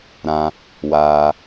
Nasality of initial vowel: nasal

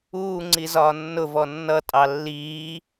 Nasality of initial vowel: oral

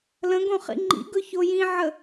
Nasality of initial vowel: nasal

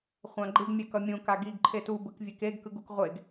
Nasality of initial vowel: nasal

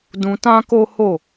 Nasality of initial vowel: nasal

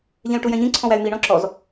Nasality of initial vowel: nasal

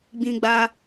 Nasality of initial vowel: nasal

